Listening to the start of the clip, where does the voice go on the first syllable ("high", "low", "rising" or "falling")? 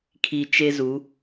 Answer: low